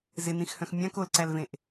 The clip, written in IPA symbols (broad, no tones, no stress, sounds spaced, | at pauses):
z ɪ n ĩ x h œ̃ x mʲ ã k o l ǀ æ l v ẽ ʔ